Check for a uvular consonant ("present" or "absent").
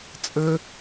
absent